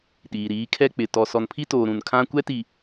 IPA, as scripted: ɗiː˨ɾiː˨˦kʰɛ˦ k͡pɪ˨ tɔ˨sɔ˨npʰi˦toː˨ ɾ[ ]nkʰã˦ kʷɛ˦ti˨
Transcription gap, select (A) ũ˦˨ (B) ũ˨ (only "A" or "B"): B